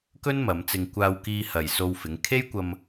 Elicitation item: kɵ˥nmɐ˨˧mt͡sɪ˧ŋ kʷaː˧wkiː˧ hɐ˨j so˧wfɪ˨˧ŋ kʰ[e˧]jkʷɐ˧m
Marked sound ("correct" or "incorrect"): incorrect